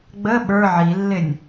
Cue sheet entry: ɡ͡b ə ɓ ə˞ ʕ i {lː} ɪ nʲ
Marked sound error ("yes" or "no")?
no